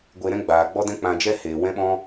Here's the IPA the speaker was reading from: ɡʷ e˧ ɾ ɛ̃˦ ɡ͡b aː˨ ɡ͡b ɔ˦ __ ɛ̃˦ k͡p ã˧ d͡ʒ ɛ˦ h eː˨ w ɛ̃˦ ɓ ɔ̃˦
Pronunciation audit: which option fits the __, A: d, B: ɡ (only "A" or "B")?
A